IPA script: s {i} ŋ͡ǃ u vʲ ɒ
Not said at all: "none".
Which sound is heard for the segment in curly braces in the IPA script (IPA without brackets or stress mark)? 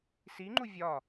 i